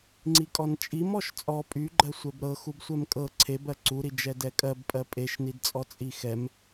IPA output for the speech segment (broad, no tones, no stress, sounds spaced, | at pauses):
ŋ͡ǀ i kʼ ɔ n t͡ʃʼ i m ɔ ʃ t͡sʼ ɔ pʼ y ɡ͡ǃ ɜ sʷ ɛ b ɾ ɤ x u b sʷ ɛ m kʼ ɤ ǀʰ e b ɜ ǀ u ɾ i d͡ʒ ɛ d ɛ kʼ ɜ b pʼ ɜ pʼ e ʃ n i d t͡sʼ ɔ t͡sʼ i x ɛ m